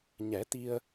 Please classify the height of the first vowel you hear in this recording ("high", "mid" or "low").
mid